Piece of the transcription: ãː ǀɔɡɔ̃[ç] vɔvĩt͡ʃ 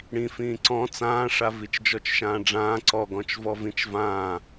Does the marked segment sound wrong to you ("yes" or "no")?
yes